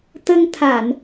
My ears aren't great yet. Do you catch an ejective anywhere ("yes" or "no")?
no